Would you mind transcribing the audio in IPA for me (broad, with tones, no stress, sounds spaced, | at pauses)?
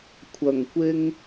kʷʰ ɐ˨˩ ŋ kʷ ɪ˧ ŋ